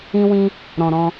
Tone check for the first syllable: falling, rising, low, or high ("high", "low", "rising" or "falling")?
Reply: high